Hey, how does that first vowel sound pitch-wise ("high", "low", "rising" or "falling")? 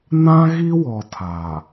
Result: high